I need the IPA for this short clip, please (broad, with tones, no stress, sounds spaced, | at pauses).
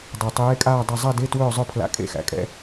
dˤ ɛ˨˩ tˤ eː˧˥ kʼ aː˥˧ dˤ ɐ˥˧ zˤ ɛ˥˧ d e˧˥˧ t w ɵː˥˧ zˤ ɵ˥˧ pʰ l a̰˧˥˧ kʼ ḛ˧˥˧ x æ̰˨˩ kʼ ɛ̰˧˥˧